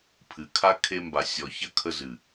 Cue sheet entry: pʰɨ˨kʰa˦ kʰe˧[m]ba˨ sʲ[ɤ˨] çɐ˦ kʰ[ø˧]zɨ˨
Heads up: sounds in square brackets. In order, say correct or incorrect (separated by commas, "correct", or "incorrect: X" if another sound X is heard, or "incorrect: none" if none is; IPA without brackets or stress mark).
correct, incorrect: ɔ˨, incorrect: ə˧